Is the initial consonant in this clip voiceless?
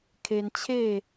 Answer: yes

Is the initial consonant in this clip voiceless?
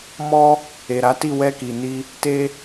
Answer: no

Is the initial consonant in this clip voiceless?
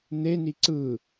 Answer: no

